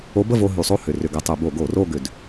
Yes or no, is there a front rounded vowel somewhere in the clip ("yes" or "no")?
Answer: yes